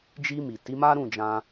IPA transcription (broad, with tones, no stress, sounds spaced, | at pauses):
d͡ʒ i˧ m i˨ t i˨˦ m a˦ ɾ ũ˦˨ d͡ʒ ã˧